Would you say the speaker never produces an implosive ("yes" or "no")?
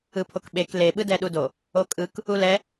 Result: no